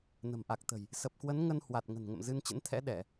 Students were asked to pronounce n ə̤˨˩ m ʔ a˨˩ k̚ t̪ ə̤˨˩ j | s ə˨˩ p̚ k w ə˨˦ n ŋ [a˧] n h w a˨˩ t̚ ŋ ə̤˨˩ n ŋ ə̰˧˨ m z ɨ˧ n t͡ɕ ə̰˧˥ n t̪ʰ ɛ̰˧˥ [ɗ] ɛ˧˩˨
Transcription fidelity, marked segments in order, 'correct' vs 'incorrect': incorrect, correct

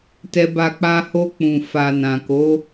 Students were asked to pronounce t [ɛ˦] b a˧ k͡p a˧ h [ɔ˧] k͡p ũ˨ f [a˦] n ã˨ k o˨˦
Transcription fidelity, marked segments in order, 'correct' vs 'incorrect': incorrect, incorrect, incorrect

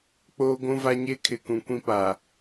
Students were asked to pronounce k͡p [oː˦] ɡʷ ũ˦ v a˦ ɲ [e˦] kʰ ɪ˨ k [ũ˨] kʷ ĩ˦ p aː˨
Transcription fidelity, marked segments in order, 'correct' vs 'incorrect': correct, correct, correct

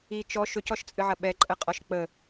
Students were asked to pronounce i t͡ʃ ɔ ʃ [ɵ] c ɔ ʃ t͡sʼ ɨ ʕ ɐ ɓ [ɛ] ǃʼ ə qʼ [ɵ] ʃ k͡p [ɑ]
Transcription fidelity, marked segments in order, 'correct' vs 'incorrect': correct, correct, incorrect, incorrect

